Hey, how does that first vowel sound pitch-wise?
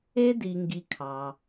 high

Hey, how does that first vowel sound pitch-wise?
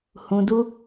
low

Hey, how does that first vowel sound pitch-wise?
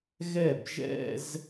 falling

